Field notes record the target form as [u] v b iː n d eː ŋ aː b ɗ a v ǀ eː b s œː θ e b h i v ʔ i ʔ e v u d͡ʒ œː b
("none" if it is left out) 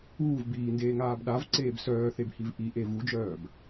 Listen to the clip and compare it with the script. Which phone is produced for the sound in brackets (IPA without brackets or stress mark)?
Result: uː